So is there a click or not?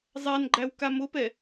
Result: yes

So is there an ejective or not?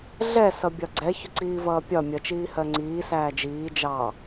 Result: no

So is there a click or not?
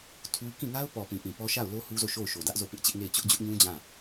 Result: no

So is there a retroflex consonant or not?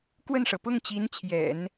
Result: yes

